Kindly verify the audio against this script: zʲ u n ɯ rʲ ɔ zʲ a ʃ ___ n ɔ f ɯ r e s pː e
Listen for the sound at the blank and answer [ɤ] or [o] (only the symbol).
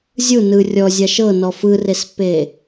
ɤ